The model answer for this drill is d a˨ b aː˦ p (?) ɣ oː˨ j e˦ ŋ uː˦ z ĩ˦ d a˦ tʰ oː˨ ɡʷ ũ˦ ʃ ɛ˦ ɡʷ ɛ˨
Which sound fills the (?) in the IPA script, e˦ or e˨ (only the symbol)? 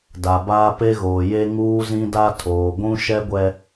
e˦